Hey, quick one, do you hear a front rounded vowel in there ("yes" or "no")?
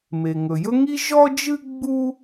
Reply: no